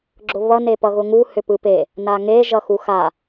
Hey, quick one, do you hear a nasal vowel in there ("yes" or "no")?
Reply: no